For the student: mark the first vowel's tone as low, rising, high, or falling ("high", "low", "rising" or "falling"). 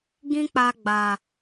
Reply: high